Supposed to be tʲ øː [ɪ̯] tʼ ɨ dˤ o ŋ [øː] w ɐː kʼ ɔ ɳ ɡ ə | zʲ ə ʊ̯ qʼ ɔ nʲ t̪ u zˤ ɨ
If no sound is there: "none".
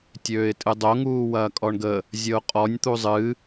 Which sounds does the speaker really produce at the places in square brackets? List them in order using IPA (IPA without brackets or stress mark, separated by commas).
ɪ̯, uː